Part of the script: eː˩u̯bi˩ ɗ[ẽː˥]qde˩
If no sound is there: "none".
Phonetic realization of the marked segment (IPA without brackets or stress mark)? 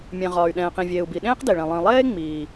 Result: ẽː˥